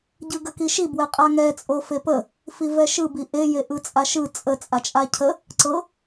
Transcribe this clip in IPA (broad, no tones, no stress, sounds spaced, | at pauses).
ɟ ɯ ɡ ə k i ʃ i b w ɛ qʼ a ŋ ɛ t͡sʼ o f e p ə | f i v ɛ ʃ ɯ b i ʔ e j e ʔ ɯ t͡sʼ a ʃ ɯ t͡sʼ ə t͡sʼ a t͡ʃʼ a cʰ ə | ǀ ɤ